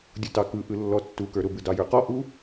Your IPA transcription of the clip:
dʲ ʊ t ɑ k ɯ ʔ ɯ lː ɔ tː u k ə˞ ɾ ʊ b ɯ d ɑ j ə˞ q ɔ ʔ u

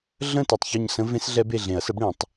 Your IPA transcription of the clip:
ɮ ə̃˦˨ t e˨ tˤ ç ɔ˦˨ ɲ s ə̃˦˥ v ẽ˦˥ s ɮ ɛ˦˥ b e˦˨ ɮ ẽ˨˩˦ ɐ̯ s ə˨˥ b ɽ ẽ˨˩˦ tˤ

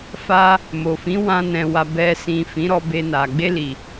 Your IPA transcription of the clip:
f a˧ | m o˨ f ĩ˨˦ w ã˧ n ɛ̃˨ w a˨ b ɛ˨ s ĩ˨ f ĩ˨˦ ɾ ɔ˧ b e˧ n a˨ ɡ͡b e˧ l i˨

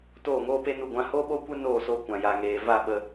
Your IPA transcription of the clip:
t oː˦˨ ŋ oː˦ p e˦ n u˦˨ ɡʷ ã˧ h o˦ ɓ oː˦ kʷ e˦ n oː˦˨ s o˧ kʷ ã˨ j a˨ ŋ eː˨ v a˦˨ ɓ ə˧

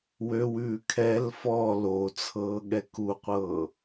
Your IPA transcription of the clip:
w ø w ʉː kʰ ɛ l f ɔ l o t͡sʰ ɤː ɠ ɛ k u qʷ ɤː

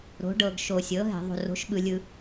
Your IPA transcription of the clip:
ɾ o̤˩˥ ɖ ɤ˨ ɡ ʃ o˨ sʲ ɤ˩˥ ɦ ɛ̤˨ ðˤ o̤˨ r o̤˩˥ ʃ ɓ ɯ˨ lʲ ɯ˨

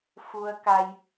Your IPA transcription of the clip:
f u˧ ə̯ k a˧ j

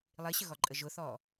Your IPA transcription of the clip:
lˠ i ɕ ə ɣ ɔ ǃʼ ə ʒ ʊ θ ɔ

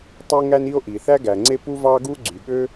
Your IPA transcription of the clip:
tˤ e˥ ŋ æ˥ n i˥ o̯ ʔ i˩ θ æ˥ ɡ æ˩ ŋ͡ǀ e˥ p u˥ v ɑ˥ ɡ u˥ ɡ͡ǀ y˩ ɠ ø˥

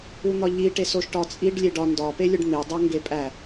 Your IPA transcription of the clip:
u n̪ ɒ ʎ i ʈ e s o ʃ ʈ ɒ t͡sʼ i ɖ lʲ e ɖ ɒ n d ɒ p e lʲ o ɖ n̪ e dˤ æ ŋ ɡ e pʼ æ

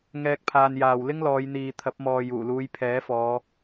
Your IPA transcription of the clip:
ŋ ɛː˧ k̚ pʰ aː˧ n j aː˨ w l ɪ˥ ŋ l ɔː˨˧ j n̪ iː˨ t̪ʰ ɐ˨˥ p̚ m ɔː˨ j uː˨˩ l uː˨˧ j pʰ ɛː˨˥ f ɔː˨˧

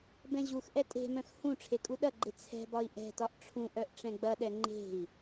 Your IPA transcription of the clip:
b ɛ̃ ʑ u x ʔ ɛ tʼ e̤ m œ̃ x h ũ ʈ͡ʂʰ e kʼ u ɗ ɐ ɡ͡ǃ e t͡sʰ ɛ̤ b ɒ i̯ ʔ ɛ̤ t ɒ ʔ ʈ͡ʂʰ ũ ʔ œ ʔ ʈ͡ʂ ɛ̃ ɡ͡b ɐ ɗ ɛ ŋ͡ǃ e̤ i̯

